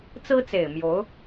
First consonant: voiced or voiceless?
voiceless